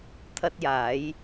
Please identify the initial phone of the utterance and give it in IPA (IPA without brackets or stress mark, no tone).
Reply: t̪ʰ